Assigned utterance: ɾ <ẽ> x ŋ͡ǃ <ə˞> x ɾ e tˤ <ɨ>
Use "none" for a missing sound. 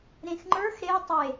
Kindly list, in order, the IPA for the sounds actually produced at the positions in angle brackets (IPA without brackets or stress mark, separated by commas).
ẽ, ə˞, e